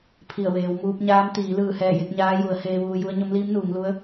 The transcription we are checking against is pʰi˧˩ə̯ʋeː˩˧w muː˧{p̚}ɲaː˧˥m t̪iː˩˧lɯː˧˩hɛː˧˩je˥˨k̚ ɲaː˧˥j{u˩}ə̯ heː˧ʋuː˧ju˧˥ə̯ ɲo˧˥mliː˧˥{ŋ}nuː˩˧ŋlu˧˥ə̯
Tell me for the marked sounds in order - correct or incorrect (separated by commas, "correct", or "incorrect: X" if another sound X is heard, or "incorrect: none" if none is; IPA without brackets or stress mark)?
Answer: correct, incorrect: u˩˧, incorrect: m